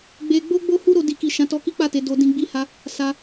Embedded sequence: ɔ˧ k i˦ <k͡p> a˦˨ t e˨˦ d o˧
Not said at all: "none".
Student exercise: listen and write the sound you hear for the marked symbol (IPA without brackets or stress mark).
k͡p